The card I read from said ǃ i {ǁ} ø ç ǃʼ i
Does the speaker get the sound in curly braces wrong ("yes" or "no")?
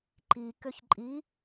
yes